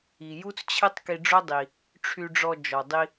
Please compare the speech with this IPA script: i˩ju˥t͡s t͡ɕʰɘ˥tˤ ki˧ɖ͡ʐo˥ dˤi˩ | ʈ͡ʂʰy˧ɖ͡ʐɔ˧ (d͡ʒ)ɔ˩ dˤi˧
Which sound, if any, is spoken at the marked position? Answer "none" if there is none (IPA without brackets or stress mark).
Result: d͡ʒ